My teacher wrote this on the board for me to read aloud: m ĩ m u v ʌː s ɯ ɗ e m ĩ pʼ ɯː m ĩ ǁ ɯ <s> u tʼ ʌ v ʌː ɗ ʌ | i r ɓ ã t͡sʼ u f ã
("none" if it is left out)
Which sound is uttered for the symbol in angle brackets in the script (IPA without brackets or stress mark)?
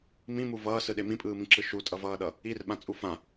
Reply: ʃ